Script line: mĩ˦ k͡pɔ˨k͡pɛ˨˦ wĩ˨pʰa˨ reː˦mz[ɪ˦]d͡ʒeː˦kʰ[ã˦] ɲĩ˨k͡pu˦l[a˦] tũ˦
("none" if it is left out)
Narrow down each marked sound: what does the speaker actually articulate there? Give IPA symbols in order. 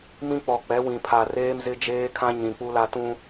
ɪ˦, ã˦, a˦

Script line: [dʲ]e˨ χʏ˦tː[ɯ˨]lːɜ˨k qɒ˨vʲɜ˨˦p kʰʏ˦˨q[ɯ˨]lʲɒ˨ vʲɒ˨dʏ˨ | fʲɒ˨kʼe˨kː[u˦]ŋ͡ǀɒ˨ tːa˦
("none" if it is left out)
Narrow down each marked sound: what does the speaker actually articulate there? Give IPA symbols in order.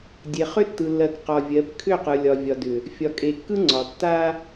dʲ, ɯ˨, ɯ˨, ɯ˦

